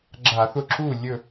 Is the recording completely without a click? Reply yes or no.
no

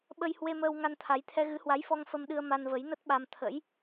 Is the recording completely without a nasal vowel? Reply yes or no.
yes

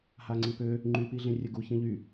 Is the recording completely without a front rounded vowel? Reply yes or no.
no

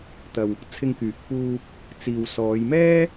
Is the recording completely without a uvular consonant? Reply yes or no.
yes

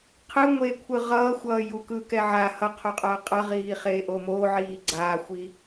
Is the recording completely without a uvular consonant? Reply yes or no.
no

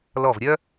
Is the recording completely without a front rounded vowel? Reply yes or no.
no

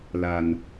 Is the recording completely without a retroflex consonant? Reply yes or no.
yes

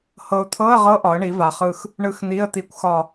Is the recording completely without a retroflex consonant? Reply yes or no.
no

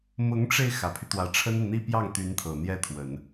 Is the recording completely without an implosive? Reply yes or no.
yes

